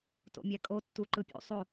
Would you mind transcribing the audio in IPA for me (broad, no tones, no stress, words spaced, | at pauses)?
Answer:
to̰mʲækʼo tːuǃɯpʲṵ sˤo